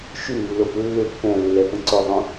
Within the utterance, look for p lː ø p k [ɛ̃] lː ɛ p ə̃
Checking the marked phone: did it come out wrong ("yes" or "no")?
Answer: no